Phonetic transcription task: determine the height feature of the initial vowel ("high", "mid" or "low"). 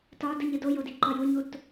low